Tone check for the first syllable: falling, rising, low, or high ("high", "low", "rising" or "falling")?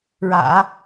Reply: low